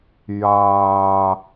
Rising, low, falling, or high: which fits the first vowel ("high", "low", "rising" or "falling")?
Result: low